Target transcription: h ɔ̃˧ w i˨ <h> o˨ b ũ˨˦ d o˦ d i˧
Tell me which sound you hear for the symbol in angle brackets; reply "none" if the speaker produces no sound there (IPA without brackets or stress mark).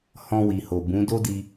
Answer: h